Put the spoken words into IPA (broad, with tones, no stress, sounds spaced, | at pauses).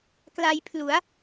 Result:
k l a˧ j pʰ l u˩˦ a̯